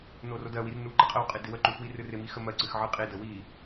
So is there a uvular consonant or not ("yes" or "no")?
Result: yes